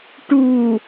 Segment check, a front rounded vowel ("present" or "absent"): absent